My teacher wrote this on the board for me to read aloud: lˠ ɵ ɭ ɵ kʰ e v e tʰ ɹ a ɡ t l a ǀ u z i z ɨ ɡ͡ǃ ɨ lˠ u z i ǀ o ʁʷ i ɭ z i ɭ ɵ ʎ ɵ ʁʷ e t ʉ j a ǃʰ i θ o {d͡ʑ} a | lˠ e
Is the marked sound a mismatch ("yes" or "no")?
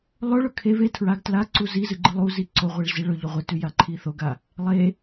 yes